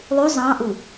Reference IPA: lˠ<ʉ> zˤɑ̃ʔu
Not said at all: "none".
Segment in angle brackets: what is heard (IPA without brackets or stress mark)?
ʉ